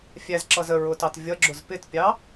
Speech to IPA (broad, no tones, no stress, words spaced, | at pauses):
fʲæzǁʌz əɹʊtɑt vʲʌɡ͡ǁʊz pɪtpʲɑ